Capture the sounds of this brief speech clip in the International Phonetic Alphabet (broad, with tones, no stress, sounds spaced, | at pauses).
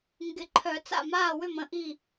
ŋ ɡ ɪ˨˩˦ ǃʰ œ˨˩˦ t͡s a̰˥˩ m aː˥˩ w ʏ˥˩ m ə̃˥˩ ʔ i˥˩